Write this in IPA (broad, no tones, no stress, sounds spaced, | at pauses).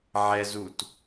ʕ ɛ z u t